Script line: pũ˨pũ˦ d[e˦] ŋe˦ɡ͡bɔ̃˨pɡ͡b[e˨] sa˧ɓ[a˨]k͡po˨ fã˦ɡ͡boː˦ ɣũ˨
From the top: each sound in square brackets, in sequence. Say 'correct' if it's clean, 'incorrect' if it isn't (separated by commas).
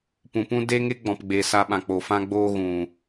correct, correct, incorrect